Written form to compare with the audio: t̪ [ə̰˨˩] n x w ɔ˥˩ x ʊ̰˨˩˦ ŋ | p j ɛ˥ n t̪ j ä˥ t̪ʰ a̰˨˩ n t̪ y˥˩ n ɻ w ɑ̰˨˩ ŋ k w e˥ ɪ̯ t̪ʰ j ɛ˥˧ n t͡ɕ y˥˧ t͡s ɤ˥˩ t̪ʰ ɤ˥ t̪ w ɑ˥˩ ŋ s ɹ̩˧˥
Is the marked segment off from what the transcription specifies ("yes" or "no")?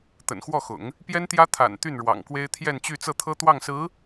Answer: no